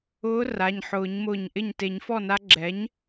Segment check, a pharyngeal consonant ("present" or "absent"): present